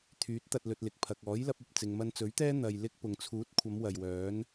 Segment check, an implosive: absent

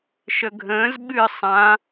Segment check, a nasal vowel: present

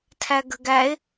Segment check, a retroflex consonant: absent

